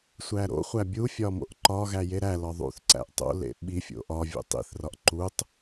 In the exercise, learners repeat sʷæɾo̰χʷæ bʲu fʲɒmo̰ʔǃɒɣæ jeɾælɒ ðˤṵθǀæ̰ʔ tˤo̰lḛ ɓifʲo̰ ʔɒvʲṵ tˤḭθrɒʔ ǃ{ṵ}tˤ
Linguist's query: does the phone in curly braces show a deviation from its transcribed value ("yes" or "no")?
yes